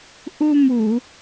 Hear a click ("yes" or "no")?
no